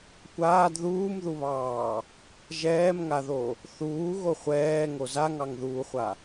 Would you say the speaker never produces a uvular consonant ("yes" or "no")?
no